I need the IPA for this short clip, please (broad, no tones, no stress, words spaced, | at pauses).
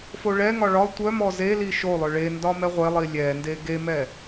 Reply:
foɭɛŋɒ ɭɒ tʷœmɔ zeli ʃolˠœ ɭendɒ mɛʁʷelˠi lʲɛnde ɡemɛ